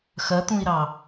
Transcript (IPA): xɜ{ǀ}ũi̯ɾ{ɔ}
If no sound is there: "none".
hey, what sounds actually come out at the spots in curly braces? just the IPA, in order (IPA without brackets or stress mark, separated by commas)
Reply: t̪, ɑ